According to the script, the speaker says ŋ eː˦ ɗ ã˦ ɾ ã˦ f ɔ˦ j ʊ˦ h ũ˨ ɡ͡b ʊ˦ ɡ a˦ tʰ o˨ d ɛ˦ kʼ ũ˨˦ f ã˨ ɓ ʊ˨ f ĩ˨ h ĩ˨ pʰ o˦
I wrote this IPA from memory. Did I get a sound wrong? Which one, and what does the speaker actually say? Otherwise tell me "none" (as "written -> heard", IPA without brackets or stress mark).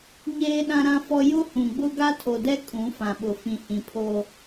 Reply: ŋ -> ɲ